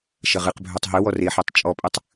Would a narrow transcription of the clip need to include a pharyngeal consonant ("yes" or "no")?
yes